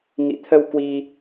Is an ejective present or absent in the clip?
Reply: absent